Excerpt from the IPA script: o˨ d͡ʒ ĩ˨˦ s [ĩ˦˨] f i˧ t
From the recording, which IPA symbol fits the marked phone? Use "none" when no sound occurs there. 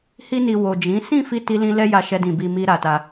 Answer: ĩ˦˨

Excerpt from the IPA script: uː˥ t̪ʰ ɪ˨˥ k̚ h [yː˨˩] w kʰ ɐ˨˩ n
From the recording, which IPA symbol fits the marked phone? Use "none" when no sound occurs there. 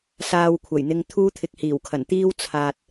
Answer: iː˨˩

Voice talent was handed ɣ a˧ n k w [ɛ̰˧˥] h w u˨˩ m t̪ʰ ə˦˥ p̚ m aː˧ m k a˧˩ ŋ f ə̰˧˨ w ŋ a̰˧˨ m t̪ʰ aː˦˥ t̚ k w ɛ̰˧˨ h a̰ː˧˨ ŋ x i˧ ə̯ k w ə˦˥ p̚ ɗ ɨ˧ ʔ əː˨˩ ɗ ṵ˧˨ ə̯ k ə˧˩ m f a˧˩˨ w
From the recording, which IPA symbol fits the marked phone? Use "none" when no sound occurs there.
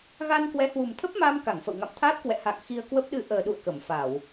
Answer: ɛ˨˦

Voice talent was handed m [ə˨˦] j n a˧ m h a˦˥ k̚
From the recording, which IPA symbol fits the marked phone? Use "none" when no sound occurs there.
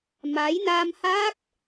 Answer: a˨˦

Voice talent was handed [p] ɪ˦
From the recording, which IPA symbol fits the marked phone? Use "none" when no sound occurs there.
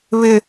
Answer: β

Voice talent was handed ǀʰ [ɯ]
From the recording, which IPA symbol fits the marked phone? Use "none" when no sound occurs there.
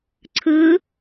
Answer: ɯ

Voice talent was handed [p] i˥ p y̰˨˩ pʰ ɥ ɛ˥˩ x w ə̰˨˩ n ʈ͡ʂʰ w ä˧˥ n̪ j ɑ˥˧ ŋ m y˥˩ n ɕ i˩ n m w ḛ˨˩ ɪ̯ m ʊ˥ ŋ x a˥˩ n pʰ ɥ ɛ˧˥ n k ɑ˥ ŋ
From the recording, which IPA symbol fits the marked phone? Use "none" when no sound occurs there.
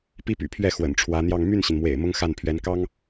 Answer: p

